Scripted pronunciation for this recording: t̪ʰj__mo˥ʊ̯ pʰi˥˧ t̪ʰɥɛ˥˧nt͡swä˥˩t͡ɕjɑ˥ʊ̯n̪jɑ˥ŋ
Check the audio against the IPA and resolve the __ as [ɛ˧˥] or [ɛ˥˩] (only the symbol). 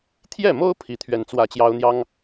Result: ɛ˥˩